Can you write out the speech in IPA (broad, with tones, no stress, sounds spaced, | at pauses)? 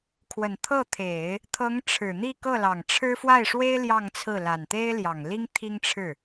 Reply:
kʰ w ə˨˩ n t̪ʰ ɤ˥˩ t̪ʰ e˨˩˦ ɪ̯ | t̪ʰ ɤ˧˥ ŋ ʈ͡ʂʰ ɻ̩˨˩ n̪ i˥˧ k ɤ˥˩ l ɑ˨˩ ŋ ʈ͡ʂʰ ɻ̩˥ f w a˥˩ ɪ̯ ʂ w e˥ ɪ̯ l j ɑ˥˧ ŋ t͡sʰ ɹ̩˥˩ l a˨˩ n t̪ e˥ ɪ̯ l j ɑ˨˩ ŋ l i˥ ŋ t̪ʰ i˥ ŋ ʈ͡ʂʰ ɻ̩˥˩